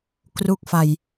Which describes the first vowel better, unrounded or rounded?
rounded